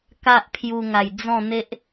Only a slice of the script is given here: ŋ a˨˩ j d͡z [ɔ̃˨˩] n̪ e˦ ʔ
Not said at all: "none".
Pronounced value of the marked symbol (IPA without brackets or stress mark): ɔ̃˥˧